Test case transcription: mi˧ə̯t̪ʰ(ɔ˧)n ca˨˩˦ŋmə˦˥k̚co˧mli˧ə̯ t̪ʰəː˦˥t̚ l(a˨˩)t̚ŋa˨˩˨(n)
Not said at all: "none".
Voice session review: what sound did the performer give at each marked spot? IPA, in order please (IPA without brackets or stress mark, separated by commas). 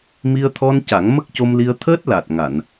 ɔ˧, a˨˩, n